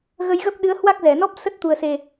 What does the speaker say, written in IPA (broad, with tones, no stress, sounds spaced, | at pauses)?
ɣ ə˧ j ɣ ə˦˥ p̚ ɗ ɨ˨˦ ə̯ h w a˦˥ k̚ z ɛ˧˩ n ɔ˦˥ p̚ s ə˦˥ t̚ t̪ u˨˩ ə̯ s e˨˩